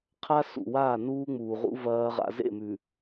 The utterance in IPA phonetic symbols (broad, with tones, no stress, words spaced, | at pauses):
qʰa˦sṵ˨ waː˦˨nuː˦ŋ͡muː˨ʁṵ˦ vɐː˦ʁa̰˦ zḛ˦˨mʉ˨